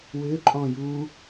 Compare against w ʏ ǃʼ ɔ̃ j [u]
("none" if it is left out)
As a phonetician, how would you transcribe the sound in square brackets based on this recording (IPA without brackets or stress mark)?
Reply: u